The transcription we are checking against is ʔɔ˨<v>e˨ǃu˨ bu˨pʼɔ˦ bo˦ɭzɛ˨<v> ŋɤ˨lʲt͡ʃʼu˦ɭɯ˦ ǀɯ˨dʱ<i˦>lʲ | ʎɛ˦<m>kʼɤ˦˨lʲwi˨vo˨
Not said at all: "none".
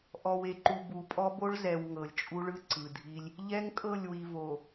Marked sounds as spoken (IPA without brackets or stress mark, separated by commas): w, w, i˦, ŋ